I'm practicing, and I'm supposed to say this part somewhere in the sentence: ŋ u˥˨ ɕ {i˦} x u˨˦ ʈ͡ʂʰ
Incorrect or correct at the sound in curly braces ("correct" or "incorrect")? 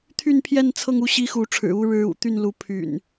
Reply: correct